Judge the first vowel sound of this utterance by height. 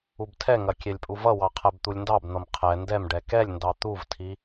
high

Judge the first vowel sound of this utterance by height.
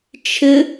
high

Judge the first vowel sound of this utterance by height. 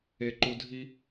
mid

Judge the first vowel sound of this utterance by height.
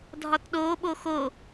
low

